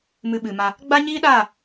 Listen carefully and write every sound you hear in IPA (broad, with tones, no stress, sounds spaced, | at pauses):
m ɨ˧ ɓ ɨ˨ m a˧ | ɡ͡b a˦ ɲ iː˦ ɗ aː˦˨